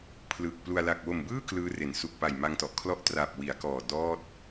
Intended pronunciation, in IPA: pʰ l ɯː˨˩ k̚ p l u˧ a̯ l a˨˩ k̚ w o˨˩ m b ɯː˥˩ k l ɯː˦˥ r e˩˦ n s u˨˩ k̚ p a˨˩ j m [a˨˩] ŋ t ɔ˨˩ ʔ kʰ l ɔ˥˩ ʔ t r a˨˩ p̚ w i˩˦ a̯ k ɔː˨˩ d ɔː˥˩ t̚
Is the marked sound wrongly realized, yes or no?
yes